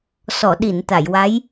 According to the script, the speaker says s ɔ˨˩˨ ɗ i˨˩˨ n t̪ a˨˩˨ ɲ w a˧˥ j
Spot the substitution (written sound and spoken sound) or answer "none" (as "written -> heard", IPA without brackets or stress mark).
ɲ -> j